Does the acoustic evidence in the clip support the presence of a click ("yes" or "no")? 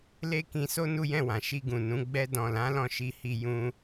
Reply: no